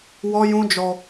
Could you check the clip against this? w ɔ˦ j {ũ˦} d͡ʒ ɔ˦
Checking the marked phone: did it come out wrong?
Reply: no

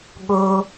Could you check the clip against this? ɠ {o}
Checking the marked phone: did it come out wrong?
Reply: no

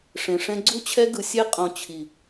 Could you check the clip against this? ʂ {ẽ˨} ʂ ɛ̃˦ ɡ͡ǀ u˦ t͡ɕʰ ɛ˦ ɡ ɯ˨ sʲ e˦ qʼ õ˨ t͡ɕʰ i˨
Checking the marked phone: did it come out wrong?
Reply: no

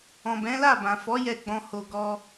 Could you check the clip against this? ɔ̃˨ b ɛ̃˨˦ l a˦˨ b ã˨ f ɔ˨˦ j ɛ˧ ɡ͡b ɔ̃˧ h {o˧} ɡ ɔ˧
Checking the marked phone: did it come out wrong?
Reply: no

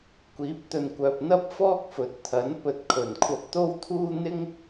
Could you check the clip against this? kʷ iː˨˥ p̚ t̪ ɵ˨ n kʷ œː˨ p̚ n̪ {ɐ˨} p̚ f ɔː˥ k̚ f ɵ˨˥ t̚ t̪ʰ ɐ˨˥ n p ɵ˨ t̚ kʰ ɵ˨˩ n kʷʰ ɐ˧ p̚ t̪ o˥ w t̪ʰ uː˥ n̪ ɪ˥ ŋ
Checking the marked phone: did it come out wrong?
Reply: yes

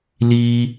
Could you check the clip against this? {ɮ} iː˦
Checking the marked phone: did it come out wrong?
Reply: yes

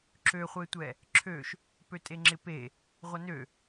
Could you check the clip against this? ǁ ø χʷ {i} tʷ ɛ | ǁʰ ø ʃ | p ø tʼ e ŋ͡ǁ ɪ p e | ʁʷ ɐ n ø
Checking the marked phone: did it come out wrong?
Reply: yes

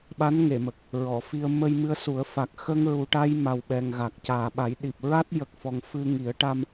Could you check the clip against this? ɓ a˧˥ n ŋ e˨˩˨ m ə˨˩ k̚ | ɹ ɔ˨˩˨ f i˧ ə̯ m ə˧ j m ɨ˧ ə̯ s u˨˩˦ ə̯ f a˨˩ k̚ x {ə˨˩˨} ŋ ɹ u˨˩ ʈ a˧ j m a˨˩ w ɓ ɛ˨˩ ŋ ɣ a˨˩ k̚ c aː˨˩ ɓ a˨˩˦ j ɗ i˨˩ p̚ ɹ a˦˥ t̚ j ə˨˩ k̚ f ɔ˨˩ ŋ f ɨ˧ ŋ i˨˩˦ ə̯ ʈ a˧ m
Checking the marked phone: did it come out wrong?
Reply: yes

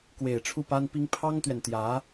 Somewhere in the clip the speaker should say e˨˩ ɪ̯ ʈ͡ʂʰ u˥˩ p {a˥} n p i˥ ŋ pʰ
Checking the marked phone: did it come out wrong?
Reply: no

